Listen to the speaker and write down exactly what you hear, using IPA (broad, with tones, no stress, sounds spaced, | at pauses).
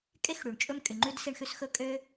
kʼ e˥ x ɽ y˩ ɳ t͡ʃʼ ɵ˥ m kʼ y˩ ŋ͡ǃ ʉ˥ d s i˥ ɳ x ʉ˥ s x ɵ˥ kʼ ø˥